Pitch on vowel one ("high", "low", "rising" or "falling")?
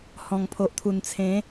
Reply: low